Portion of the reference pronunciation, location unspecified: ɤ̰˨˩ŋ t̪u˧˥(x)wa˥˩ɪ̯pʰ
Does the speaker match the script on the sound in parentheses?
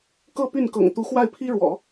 yes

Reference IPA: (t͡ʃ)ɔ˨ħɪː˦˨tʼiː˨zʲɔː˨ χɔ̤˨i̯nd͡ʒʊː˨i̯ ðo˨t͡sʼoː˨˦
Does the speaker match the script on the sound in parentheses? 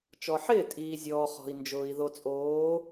yes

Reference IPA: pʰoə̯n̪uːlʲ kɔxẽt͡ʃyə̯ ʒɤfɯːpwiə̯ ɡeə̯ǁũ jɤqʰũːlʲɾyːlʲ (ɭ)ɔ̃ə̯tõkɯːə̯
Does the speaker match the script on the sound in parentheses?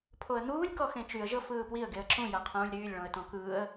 yes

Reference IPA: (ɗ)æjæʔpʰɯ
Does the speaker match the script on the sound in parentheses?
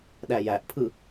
yes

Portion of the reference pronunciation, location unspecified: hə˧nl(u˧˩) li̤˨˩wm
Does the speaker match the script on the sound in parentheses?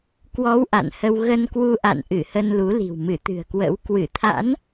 no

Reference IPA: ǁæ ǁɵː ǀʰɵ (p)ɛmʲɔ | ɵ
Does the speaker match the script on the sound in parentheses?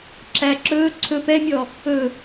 yes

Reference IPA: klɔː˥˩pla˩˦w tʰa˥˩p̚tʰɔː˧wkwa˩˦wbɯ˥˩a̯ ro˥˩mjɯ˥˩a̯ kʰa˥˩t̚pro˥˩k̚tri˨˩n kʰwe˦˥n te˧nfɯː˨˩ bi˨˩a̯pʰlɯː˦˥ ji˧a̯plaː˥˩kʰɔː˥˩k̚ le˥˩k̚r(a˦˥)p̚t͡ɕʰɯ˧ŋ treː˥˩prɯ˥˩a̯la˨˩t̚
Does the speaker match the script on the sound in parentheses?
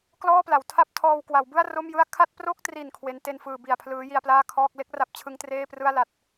yes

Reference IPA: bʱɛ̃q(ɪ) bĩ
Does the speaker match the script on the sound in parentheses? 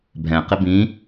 yes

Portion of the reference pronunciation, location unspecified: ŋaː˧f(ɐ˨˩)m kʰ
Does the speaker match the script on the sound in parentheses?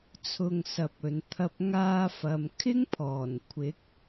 no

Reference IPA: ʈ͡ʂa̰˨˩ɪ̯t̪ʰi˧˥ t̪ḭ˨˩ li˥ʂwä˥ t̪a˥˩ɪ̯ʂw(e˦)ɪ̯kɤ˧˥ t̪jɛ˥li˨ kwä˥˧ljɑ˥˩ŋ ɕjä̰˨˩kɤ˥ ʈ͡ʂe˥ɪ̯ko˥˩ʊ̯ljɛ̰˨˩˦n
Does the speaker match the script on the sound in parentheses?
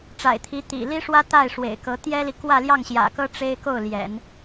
no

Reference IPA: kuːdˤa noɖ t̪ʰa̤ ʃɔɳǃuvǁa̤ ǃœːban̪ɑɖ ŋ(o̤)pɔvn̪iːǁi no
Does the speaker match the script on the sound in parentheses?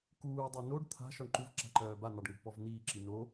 yes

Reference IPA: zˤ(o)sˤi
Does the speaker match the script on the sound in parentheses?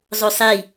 yes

